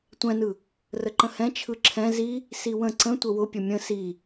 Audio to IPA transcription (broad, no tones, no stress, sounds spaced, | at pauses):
tʷ ɛ̃ n ɯ | r ə ǃ ə̃ h ɛ̃ t͡ʃʰ ɯ ǁʰ ɛ̃ z i | s i w ə̃ ǀ ə̃ tʷ ə w ʊ pʲ ə mʲ ə̃ s i